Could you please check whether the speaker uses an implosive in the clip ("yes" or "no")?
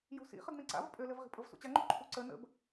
no